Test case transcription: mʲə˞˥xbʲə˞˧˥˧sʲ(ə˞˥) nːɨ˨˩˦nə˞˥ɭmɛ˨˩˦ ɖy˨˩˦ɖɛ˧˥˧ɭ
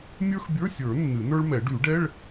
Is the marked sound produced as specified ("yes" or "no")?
no